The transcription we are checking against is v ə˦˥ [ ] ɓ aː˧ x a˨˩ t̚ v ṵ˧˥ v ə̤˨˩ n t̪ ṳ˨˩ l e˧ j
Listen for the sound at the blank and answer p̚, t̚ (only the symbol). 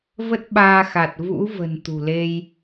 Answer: t̚